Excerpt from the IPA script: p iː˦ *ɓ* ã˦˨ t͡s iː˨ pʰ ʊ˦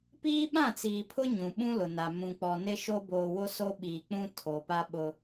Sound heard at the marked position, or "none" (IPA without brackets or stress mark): ɓ